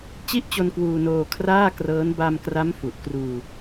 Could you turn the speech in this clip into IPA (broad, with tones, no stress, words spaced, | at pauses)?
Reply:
t͡ɕi˥˩ʔt͡ɕo˧n kwuː˧noː˧ kʰraː˥˩ krɤː˦˥n ba˧mkra˦˥m fu˨˩ʔkruː˧